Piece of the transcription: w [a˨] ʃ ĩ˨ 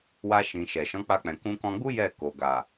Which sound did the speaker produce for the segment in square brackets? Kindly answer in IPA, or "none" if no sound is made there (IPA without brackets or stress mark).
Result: a˧